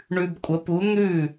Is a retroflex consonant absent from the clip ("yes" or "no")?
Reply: no